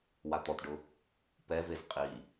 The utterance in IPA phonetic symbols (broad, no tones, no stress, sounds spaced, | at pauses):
w a t̪ ɔ t ɖ ʊ | p ɛ v e z qʼ i